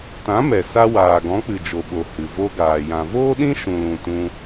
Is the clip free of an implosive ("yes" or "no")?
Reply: no